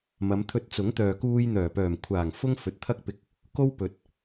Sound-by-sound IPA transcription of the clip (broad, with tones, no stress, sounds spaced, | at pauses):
m ɐ˨˧ m t̪ʰ ɵ˧ t̚ t͡s ʊ˨˥ ŋ t̪ œː˨ k uː˧ j n̪ œː˨˩ p œː˨˩ m kʷʰ aː˨˩ ŋ f ʊ˥ ŋ f ɵ˨ t̚ t̪ʰ ɐ˥ k̚ p ɪ˧ k̚ | k o˥ w p ɵ˨˥ t̚